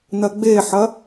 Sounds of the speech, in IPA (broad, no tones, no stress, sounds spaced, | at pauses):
n ɐ ɡ͡b e ħ ɐ